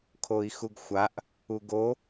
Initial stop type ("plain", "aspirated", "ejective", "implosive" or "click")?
aspirated